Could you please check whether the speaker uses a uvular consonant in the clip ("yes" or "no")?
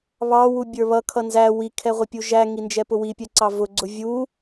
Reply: yes